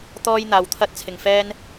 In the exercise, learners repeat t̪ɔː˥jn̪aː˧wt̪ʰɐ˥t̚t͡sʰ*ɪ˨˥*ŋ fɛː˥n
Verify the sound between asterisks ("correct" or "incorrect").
incorrect